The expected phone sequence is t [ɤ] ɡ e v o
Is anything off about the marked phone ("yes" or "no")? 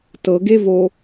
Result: no